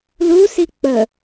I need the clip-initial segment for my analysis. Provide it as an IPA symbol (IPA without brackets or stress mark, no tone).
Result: l